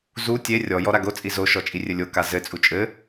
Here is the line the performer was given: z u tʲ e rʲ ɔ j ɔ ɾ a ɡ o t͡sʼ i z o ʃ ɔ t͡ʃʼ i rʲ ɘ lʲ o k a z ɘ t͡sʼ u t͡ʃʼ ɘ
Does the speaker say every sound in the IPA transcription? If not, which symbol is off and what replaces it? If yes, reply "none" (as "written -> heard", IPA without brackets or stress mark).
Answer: none